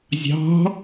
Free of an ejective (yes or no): yes